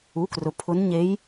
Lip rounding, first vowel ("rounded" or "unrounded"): rounded